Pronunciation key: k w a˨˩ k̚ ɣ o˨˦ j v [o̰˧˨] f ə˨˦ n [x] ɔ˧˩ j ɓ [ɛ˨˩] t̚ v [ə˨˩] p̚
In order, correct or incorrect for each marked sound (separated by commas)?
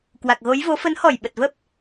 incorrect, incorrect, incorrect, incorrect